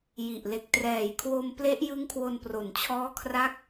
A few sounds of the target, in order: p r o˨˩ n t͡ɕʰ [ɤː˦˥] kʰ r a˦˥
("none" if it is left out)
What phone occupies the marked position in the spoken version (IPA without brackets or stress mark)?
ɔː˦˥